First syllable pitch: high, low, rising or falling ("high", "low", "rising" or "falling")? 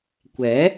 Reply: rising